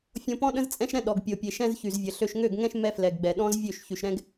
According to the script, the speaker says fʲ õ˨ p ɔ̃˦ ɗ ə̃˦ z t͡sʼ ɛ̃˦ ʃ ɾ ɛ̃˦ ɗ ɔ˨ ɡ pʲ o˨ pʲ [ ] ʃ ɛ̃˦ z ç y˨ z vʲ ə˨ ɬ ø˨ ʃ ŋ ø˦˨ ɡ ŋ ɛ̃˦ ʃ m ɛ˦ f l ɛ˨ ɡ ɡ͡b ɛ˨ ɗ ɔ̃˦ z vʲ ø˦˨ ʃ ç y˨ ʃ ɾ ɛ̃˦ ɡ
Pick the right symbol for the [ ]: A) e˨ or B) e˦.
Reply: A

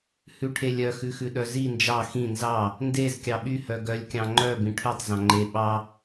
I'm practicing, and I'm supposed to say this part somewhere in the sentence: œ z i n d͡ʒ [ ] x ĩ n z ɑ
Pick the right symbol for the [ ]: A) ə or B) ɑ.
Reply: B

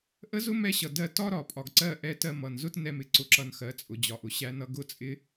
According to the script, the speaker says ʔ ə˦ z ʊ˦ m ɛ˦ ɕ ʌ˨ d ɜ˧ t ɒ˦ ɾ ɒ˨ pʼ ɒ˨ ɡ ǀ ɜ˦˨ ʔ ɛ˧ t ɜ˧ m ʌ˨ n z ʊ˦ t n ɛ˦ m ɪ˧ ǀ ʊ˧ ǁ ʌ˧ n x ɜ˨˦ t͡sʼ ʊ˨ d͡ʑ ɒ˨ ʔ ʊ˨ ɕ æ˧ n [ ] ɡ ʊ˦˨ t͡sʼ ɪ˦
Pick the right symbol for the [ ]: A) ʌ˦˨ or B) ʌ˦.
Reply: B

